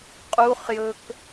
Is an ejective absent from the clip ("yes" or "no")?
no